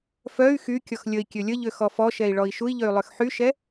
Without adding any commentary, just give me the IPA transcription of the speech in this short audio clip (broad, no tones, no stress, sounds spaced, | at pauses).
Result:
f œ y̯ x y kʲ ɔ x lʲ ə i̯ kʲ ø lʲ ə ʎ ø x ɔ f ɔ ʃ ɛ i̯ ɭ ɔ i̯ ʃ u i̯ ʎ ø y̯ lˠ ø x ħ y ʃ ɛ